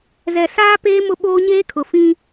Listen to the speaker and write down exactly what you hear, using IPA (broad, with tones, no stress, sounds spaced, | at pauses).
z ɛ˨ s aː˦ p eː˦ m ʊ˦ ɓ oː˦ ɲ eː˦ kʰ ʊ˨ f ĩ˦